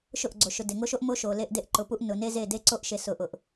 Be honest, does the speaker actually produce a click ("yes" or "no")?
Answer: yes